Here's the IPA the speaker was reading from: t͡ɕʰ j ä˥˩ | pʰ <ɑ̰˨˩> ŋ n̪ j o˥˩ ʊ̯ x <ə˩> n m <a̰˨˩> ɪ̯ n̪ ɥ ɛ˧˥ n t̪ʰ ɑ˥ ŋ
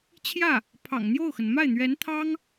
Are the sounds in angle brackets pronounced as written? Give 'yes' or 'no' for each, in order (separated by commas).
yes, yes, no